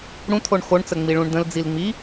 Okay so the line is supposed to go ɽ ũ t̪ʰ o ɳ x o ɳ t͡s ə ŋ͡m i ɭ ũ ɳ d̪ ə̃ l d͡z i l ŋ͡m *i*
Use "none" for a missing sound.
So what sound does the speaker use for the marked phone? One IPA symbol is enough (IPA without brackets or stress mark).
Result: i